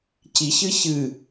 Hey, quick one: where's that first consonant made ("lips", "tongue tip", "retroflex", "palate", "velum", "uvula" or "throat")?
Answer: palate